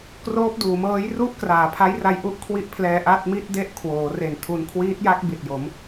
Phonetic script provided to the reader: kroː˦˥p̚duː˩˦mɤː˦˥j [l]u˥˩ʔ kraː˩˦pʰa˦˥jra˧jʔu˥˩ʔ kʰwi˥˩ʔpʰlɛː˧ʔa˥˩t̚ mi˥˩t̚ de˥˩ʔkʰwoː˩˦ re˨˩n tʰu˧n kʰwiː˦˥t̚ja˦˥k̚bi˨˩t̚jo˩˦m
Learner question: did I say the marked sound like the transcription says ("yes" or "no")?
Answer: no